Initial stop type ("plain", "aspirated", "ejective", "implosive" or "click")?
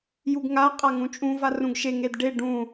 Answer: plain